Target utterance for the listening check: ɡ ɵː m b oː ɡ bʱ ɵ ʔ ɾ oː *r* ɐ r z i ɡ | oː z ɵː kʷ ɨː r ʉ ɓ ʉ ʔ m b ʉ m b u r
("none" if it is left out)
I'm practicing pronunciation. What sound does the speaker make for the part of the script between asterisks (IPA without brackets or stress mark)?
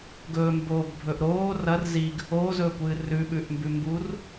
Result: r